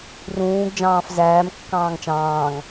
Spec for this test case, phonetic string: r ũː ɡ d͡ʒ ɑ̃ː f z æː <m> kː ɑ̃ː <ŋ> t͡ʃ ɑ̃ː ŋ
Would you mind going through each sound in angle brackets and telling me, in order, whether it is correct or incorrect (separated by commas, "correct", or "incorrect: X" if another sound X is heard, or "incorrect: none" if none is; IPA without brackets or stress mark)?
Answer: correct, correct